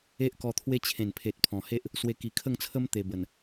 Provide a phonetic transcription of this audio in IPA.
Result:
e˦ ʔ k ɔ˧ t̪ʰ w e˦ t͡ɕʰ ẽ˨˩ n pʰ e˨ t̚ pʰ ɔ̃˨˩ h e˦ ʔ | s w e˧ k i˨˩ kʰ ə˥˧ ŋ t͡sʰ ə˦ m t̪ e˨˩ b ə˨˩ n

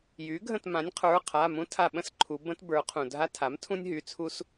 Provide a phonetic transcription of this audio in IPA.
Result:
j y˩˥ ɡʱ ə̃˦˨ t m ã˩˥ nʲ qʰ ə˞˩˧˩ qʰ a˩˧˩ m ũ˥ tʰ a˦˨ ɓ ə̃˥ s ǃʰ u˩˧ b ə̃˥ t b ə˞˩˧ qʰ ũ˩ dʱ a˥ tʰ a˩˥ m tʰ ũ˥ nʲ ɦ y˩˧˩ t͡sʰ u˥ s

